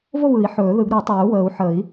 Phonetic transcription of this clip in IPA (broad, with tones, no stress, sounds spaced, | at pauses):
v o˥˨ β ɯ˨˩˦ i̯ ħ ɵː˨˩˦ ð ɯ˨˩˦ ɡ ɾ ɯ˨˩˦ tˤ ɵː˨˩˦ u̯ w əː˨˩˦ u̯ ħ ə˨˩˦ i̯